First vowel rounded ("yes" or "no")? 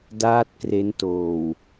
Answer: no